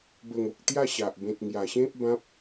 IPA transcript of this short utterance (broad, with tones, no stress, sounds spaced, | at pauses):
b ə˨˩ ŋ o˨ k̚ t̪ j a˥˧ ɕ a˨ ʔ b ẽ˨ t̚ ŋ j a˨˩ ɕ ẽ˦ p̚ b ã˦ p̚